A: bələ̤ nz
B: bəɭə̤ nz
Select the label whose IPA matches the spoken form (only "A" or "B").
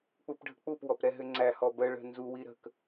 B